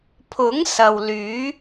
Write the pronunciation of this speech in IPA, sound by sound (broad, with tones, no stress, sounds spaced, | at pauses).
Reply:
pʰ ʊ˨˥ ŋ s ɐ˨ w l yː˨˥